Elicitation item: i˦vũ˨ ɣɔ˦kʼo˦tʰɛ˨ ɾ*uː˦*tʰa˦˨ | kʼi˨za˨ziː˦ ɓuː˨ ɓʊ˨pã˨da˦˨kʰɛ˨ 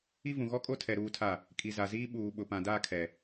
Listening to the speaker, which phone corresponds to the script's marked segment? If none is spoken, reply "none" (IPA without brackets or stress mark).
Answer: uː˦